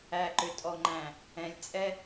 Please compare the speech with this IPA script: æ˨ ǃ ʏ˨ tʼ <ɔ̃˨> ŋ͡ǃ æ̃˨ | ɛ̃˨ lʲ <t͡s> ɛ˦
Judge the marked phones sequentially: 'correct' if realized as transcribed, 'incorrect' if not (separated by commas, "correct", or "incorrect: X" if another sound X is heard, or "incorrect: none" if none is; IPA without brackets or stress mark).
incorrect: ɔ˨, incorrect: t͡sʼ